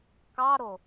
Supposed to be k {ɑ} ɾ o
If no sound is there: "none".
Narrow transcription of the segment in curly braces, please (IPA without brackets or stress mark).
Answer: ɑ